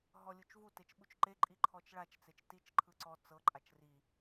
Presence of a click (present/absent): present